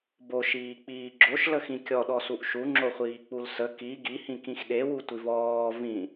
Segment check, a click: present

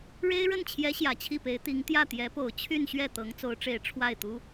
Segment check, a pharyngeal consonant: absent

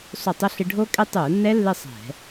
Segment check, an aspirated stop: absent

